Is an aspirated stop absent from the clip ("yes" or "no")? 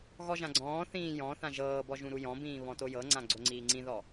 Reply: yes